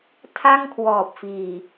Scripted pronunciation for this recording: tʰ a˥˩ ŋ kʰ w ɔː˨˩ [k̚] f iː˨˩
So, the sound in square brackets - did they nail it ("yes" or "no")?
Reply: no